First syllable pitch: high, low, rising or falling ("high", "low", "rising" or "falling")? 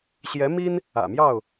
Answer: rising